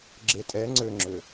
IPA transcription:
ɡ͡ǁ e tʼ ɛ ŋ͡ǀ ø ŋ͡ǁ ø

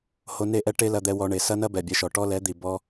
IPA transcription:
h o˧ n e˦˨ ʔ ɛ˦ ʈ e˦ l ɐ˧ d̪ ɛ˧ w ɔ˧ ɳ e˨ s ɐ˦ n ɐ˦ b ɛ˨ bʲ ɛ˧ ʃ ɔ˨ ʈ ɔ˦ l ɛ˨˦ d̪ i˨ b ɔ˦

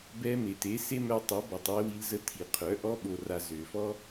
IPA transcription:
b ɛ˧ m e˨ t e˨˦ s e˦ m œ˧ tˤ ø˨˦ b ɔ˨ tˤ w ɪ˧ w i˧ l z ə˧ tʰ i˨ qʰ œ˨˦ ʔ ɔ˧ ɓ o˨ r a˨ z ø˨ f ɔ˦

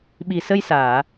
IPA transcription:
ɓ i˨˩ s ə˧ j s aː˨˩˨

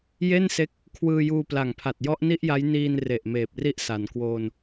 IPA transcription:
j e˥˩ n s e˦˥ k̚ | kʰ w ɯː˧ j uː˧ p l a˨˩ ŋ pʰ a˨˩ t̚ j ɔ˦˥ ʔ n i˥˩ ʔ j a˦˥ j n iː˧ n r e˨˩ ʔ m eː˨˩ p̚ r i˦˥ ʔ s a˩˦ n k w oː˧ n

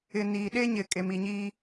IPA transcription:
ɪ˨ n iː˨ ɗ e˦ ɲ ɪ˨ kʼ e˨ m i˨ ɲ iː˦

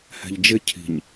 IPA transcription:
h ɛ̤ ʎ d͡ʒ ɪ cʰ i̤ ɲ

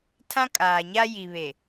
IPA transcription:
tʰ ã˦ kʼ aː˨ ɲ a˦ j i˨ β e˨

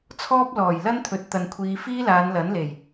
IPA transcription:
t͡sʰ ɔː˥ p̚ l ɔː˨˩ j l ɐ˥ n t̪ʰ ɵ˨˥ t̚ t̪ ɐ˨ n kʷʰ iː˨˧ f iː˥ l aː˨˧ n l ɐ˨˥ n l e˨˩ j

